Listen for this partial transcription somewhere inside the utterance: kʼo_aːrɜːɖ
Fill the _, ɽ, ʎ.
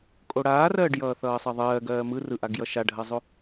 ɽ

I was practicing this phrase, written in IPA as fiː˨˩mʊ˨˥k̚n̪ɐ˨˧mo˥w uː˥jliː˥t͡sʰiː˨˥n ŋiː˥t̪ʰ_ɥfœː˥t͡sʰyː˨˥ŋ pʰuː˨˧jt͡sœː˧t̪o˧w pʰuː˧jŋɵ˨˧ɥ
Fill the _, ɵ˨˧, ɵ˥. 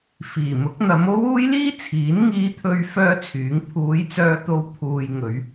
ɵ˥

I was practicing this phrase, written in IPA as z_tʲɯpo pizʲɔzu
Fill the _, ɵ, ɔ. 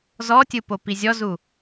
ɔ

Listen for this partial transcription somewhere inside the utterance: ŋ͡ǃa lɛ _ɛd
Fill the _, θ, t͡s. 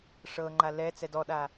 t͡s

